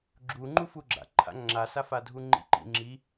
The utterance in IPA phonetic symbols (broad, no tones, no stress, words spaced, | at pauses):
ɡ͡ǁuŋ͡ǃu fuɡ͡ǁa̰ ǃʰa̰ŋ͡ǁasafa dʱuŋ͡ǃḭǃḭ ŋ͡ǁi